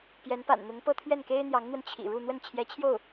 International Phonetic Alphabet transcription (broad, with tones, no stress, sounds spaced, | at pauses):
p j ɛ˧˥ n p a̰˨˩ n n̪ ʊ˧˥ ŋ p ɤ˥˧ t̪ʰ ɥ ɛ˥˩ n k e˥ ɪ̯ n̪ j ɑ˧˥ ŋ n̪ w ə˧ n t͡ɕʰ ḭ˨˩ ɻ u˥˧ n̪ w ə˥˩ n t͡ɕʰ j ɛ˧˥ t͡ɕʰ j o˥˩ ʊ̯